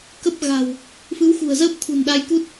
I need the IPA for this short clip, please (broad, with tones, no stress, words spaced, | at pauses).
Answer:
kə˦˥p̚ɣa̤˨˩w | fɨ˨˦wxṳ˨˩ə̯zəː˦˥p̚ t̪ʰṳ˨˩nɗa˧jku˦˥t̚